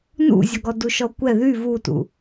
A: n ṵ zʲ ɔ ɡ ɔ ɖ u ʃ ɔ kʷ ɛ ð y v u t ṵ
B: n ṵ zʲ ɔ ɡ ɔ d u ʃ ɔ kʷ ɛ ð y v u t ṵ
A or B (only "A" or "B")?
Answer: B